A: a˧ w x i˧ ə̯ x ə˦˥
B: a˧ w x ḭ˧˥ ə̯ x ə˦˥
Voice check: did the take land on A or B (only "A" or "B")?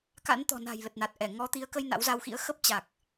B